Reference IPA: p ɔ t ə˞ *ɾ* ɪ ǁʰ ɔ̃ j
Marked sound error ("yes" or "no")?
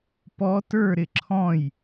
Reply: no